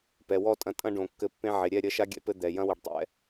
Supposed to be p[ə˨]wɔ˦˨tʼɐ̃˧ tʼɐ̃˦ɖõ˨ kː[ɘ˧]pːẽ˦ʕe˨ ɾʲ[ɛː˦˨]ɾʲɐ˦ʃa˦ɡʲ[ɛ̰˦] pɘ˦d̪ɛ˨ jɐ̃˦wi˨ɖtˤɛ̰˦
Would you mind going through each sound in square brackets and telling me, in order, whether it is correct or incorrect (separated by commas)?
incorrect, correct, incorrect, correct